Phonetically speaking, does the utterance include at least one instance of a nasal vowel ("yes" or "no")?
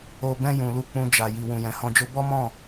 yes